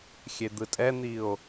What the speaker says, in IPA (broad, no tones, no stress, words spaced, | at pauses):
xʲed̪ɯtʼɛn̪io̯